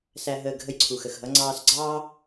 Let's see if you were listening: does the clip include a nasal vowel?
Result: no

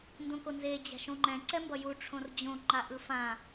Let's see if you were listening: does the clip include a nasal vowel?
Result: yes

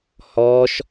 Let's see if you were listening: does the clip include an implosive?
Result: no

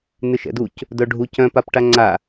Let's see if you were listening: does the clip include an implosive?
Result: no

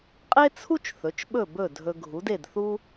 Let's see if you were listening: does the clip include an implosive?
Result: yes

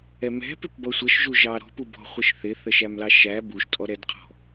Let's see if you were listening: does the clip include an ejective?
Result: yes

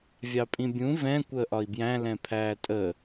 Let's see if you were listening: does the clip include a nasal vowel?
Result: yes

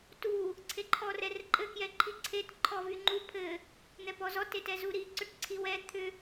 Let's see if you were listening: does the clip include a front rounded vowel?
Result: yes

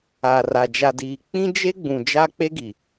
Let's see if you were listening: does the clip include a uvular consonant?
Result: no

